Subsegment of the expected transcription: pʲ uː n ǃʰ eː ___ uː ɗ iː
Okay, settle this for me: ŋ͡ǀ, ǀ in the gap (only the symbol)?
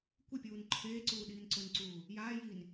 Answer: ǀ